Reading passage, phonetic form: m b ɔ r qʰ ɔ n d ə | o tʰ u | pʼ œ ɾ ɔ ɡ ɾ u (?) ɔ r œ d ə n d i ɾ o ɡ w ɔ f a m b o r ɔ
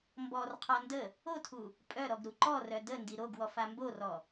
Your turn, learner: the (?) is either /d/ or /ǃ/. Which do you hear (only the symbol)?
ǃ